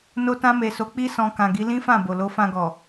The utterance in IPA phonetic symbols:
no˧tã˧me˨so˨˦ k͡pi˦sɔ̃˧ kã˨ɡi˨˦ lĩ˦fã˦˨ bo˨lo˨˦fã˧ɡɔ˨

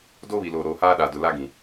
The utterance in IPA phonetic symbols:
do˦βi˨lo˨ ɾoː˨haː˦ ɗa˨dʊ˨la˦ɡĩ˨

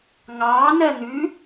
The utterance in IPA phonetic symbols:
ŋɑː nɜn̪ʉ

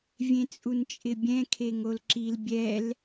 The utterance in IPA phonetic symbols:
vʲẽt͡sʼunt͡ʃʼɪbʲɛ̃ kʰeŋolǁil bʲɛl

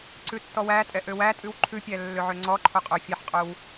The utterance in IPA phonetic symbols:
ǀʉtːɔwætʼɛ ʔøwætʼʉw ǃʰʉpʲæ lːøʕøŋ͡ǀɔǃʰo qʼøfʲɑħqʼɵw

